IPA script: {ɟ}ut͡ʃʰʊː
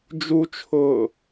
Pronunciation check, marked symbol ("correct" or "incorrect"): incorrect